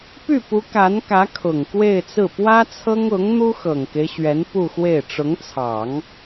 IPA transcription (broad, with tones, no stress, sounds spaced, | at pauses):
p y˥˩ p u˧˥ k a˧˥ n k ä˧˥ kʰ ʊ˨˩ ŋ k w e˥˧ ɪ̯ t͡s ɹ̩˥˩ p w ä˥ t͡sʰ ɤ˥ ŋ ʊ˧˥ ŋ n̪ u˥ x ɤ˨˩ ŋ k e˦ ɪ̯ ɕ ɥ ɛ˧˥ n p u˥˧ x w e˥˩ ɪ̯ ʈ͡ʂ ʊ˧˥ ŋ t͡sʰ ɑ˨˩˦ ŋ